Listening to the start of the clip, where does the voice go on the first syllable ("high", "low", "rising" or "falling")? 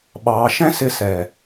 low